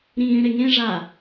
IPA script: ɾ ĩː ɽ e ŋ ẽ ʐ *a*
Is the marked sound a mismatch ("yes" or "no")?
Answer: yes